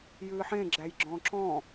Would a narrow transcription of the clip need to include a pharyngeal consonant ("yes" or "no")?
yes